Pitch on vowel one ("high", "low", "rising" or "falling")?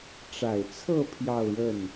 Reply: low